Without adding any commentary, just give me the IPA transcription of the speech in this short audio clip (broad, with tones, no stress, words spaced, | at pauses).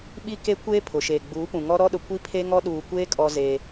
ɓi˦ke˦kʷeː˦ pʰʊ˨ ʃeː˨ɡ͡buː˨˦pũ˨ŋɔ˦ ɾɔ˦ɗʊ˨ kʷi˦pʰe˦ŋɔ˦ ɗuː˨kʷeː˦ kʼɔ˦zeː˦